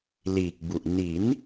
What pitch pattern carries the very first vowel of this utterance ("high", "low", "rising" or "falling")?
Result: low